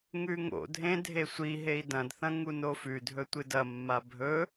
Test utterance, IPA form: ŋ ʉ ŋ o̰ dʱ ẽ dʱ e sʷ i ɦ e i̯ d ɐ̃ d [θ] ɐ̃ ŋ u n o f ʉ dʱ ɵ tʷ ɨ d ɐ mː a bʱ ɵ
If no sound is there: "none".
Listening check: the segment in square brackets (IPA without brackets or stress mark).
θ